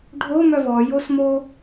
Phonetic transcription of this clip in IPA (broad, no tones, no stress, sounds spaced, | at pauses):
ɖʱ o m œ v ɔ j o s m o